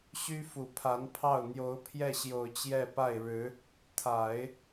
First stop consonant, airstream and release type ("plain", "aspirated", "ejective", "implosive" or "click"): aspirated